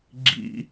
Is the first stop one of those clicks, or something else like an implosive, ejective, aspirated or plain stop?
click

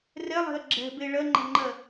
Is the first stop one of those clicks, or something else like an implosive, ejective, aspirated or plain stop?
click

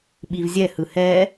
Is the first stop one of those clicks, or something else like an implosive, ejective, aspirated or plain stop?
implosive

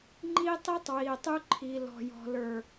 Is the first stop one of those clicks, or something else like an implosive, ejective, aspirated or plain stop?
click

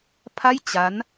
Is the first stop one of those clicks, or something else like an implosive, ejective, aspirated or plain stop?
aspirated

